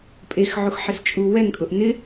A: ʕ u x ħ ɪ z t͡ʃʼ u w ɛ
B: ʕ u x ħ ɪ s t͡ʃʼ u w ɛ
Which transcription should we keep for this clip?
B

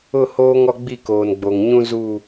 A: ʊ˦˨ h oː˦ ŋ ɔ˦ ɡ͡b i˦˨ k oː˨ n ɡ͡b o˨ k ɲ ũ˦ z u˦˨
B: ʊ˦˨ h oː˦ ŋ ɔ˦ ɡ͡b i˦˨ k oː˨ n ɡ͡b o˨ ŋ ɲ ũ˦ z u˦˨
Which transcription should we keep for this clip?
B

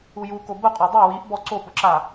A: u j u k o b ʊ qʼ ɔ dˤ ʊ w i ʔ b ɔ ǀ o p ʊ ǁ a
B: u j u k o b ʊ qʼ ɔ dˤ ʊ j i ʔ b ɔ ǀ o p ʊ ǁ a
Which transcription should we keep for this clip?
A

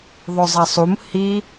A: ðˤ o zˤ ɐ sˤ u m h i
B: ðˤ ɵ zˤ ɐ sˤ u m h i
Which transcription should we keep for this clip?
B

